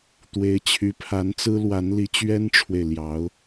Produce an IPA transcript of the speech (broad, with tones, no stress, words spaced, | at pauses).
t̪we˧˥ɪ̯t͡ɕʰy˧˥pʰa˧˥nt͡sɹ̩˥ lwa˧˥nli˧˥t͡ɕɥɛ˥nʈ͡ʂʰwe˨ɪ̯ ljɑ˧˥ʊ̯